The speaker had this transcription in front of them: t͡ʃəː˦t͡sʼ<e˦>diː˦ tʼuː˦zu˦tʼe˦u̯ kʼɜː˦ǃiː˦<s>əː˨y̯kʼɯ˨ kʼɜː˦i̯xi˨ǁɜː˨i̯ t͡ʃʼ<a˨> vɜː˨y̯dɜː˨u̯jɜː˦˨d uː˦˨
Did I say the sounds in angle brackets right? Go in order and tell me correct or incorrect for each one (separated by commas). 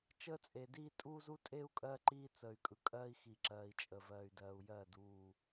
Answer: incorrect, incorrect, incorrect